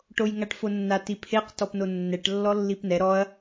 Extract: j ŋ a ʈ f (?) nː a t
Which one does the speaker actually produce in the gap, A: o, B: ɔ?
A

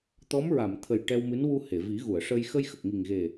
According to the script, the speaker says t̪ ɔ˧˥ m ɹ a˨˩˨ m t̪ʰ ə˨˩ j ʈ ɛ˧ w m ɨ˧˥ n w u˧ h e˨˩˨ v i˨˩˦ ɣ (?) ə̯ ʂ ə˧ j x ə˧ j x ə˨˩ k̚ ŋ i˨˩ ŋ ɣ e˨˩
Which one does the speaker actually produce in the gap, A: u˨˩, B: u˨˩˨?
B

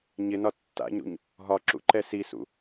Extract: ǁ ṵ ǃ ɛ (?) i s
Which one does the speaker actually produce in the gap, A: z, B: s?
B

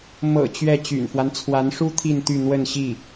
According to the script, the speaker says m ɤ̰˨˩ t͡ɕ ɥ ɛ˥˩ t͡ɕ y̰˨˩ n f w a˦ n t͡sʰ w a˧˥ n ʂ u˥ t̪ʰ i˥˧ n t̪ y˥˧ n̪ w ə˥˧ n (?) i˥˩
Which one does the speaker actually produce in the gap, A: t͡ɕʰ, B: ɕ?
B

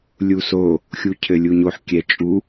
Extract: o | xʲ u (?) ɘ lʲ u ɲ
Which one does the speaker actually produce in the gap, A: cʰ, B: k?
A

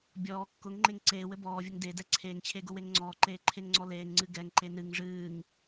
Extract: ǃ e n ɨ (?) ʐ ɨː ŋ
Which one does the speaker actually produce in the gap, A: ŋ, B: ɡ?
A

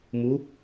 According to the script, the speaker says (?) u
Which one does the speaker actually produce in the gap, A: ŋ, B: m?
B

